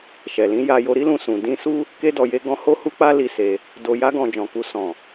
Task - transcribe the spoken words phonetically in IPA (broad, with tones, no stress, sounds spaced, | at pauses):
ʃ ɛ˨ l ĩ˨˦ j a˧ j o˧ ɾ i˦ l ũ˧ s ũ˨ d ĩ˧ s u˦ | k e˧ d ɔ˨ j e˧ ɡ ɔ̃˧ h o˦ h u˦ k͡p a˦ l i˦ s e˧ | d o˨ j a˧ ɡ ɔ̃˨ d͡ʒ ɔ̃˨ k u˧ s ɔ̃˨